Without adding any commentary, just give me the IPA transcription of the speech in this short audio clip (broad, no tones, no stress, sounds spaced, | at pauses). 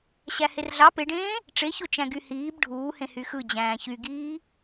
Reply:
ɕ æ h e r ɮ ɑ p e ɖ ẽː | ʈ͡ʂ e ç o t͡ʃ æ̃ ɡ y h iː b ɖʱ uː h ẽ h y x ɯ d͡ʑ æ̃ː ç y ɡ iː